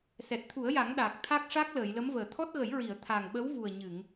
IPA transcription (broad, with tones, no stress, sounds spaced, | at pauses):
s ɛ˨˩ t̚ t̪ʰ u˨˩˦ ə̯ j a˨˩˦ ŋ ɗ aː˨˩ k̚ t̪ʰ a˦˥ k̚ ʂ a˦˥ k̚ l əː˨˩˨ j l ə˧˥ m v əː˨˩˨ t̪ʰ ɔ˦˥ t̚ ɣ ə˨˩˦ j ɹ i˨˩˨ ə̯ t̪ʰ a˨˩ ŋ ɓ ə˧˥ w v u˨˩ ə̯ ɲ ɨ˨˩˨ ŋ